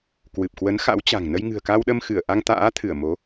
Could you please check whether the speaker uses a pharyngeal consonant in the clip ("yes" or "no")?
no